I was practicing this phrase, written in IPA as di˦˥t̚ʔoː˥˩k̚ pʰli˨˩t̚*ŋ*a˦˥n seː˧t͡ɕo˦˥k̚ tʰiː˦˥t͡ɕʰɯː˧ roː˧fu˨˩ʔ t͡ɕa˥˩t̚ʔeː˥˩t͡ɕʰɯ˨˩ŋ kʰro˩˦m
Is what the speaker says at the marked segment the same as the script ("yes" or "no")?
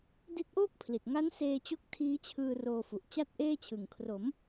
yes